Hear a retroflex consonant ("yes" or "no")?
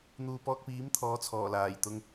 no